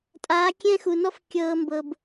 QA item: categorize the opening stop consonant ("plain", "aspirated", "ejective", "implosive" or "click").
ejective